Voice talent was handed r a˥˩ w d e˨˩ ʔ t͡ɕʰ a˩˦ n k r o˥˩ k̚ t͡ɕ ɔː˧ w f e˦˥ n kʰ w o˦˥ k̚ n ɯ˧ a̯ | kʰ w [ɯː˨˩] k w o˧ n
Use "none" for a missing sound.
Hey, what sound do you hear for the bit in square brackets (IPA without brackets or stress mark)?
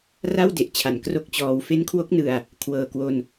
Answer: ɤː˨˩